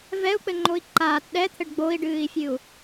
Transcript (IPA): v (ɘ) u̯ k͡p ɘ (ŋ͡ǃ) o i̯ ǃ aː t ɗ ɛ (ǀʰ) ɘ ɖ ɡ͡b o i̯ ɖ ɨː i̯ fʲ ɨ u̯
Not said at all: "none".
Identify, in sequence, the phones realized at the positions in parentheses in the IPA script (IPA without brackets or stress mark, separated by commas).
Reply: ɛ, ŋ͡ǃ, t̪ʰ